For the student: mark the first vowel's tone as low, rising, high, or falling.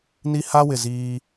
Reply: high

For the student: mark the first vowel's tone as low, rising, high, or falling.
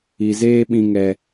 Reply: low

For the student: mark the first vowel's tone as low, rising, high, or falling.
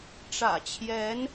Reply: low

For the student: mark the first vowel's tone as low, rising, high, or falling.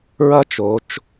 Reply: high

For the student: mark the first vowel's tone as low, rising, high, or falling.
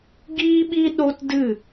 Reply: high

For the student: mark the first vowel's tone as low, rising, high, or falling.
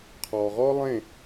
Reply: low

